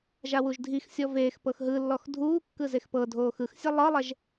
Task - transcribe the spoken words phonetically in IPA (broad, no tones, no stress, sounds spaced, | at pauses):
ʒ a w u ʒ dʱ i x sʲ ɔ v eː x p ɤ x ɦ ɯ lː ɔ x dʱ uː kː ɯ z e x p ɤ dʱ oː x ɯ x sʲ a lˠ ɤ lˠ ɛ ʒ